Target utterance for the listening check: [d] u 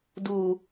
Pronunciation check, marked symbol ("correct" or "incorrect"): correct